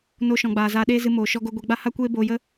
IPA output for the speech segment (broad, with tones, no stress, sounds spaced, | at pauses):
n o˧ ʃ ɔ̃˨ ɡ͡b aː˨ z aː˧ ɗ eː˦ z ɨ˧ m oː˨ ʃ ɔ˧ ɡ o˧ ɡʷ e˧ ɡ͡b a˦ h a˦ kʷ eː˦ b oː˧ j ə˦